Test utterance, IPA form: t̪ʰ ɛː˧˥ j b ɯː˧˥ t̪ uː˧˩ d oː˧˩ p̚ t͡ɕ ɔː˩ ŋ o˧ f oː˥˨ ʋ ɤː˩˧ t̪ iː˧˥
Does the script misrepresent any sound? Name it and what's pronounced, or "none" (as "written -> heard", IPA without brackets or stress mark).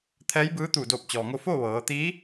none